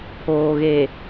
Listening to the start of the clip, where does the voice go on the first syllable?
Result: low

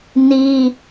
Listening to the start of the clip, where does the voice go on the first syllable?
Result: high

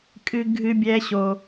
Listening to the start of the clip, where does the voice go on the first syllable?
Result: high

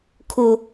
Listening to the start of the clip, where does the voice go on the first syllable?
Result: high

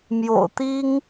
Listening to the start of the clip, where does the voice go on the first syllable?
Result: low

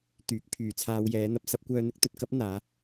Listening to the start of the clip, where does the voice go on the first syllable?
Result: rising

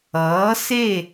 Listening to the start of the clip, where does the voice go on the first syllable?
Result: rising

